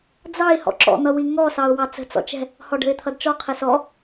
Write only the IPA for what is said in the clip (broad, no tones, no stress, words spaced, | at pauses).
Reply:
d͡zɑɪ̯ hɔ̰ǁɔ̰ n̪ʌwiŋɔ sɑʊ̯wɑt͡sə̤ t͡sɔ̰t͡ʃɛ̤ | hɔɖə̤ɪ̯t̪ʰʌdt͡ʃɔ qʰɪsɔ